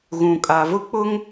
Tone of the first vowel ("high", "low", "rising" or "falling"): low